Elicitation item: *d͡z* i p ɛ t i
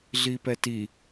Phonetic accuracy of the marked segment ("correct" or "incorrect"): incorrect